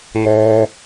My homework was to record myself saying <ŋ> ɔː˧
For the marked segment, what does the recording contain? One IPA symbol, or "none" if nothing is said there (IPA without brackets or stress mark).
ŋ